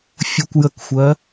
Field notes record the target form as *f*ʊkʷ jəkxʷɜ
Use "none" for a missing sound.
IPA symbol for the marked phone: fʲ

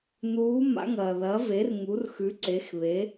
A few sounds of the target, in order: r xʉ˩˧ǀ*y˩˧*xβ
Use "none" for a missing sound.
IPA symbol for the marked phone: e˩˧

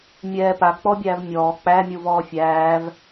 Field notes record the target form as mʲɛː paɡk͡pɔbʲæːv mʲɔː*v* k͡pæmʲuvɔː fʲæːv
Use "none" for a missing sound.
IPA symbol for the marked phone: none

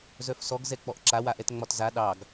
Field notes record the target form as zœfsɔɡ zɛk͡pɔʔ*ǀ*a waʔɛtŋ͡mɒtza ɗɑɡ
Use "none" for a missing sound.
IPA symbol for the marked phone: ǁ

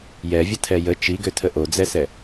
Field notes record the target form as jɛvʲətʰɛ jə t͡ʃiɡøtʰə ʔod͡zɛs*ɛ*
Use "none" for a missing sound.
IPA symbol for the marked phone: ɛ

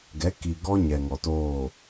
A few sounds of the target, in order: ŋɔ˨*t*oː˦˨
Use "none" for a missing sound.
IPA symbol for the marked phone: t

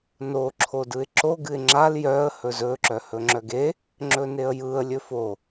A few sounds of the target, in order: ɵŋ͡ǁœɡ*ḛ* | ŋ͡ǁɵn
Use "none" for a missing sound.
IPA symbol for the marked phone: e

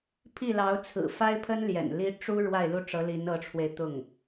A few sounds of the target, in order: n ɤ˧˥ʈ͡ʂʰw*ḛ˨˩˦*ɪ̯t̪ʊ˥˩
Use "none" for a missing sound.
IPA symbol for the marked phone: e˧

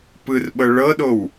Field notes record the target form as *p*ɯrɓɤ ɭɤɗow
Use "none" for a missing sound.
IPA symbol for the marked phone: p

